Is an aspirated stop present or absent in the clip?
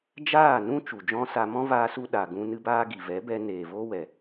absent